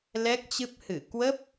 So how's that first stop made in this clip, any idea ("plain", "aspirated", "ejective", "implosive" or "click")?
plain